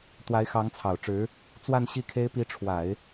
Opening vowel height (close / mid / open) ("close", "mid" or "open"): open